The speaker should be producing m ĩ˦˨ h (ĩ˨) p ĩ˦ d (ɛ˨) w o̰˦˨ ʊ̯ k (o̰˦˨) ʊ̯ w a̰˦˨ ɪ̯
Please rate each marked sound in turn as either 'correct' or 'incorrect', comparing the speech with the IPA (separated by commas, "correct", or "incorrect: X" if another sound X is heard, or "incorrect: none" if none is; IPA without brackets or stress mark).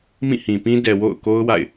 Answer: correct, correct, incorrect: o˦